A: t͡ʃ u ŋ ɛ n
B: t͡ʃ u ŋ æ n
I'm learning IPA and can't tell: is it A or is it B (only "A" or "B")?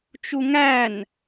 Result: B